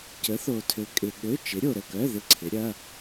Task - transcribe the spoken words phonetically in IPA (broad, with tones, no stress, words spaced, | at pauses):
cə˨˥θo˨tʰø˨ kʼɪ˨ ɠø˧˥˧ t͡ʃɪ˨˥ɾʲo˨ɾə˦˨kœ˧˥˧ ðɪ˦˨ǀʰɪ˨˥ɾʲɐ˧˥˧